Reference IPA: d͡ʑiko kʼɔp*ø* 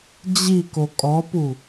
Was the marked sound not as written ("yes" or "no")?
yes